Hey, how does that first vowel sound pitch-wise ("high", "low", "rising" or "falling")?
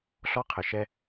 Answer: high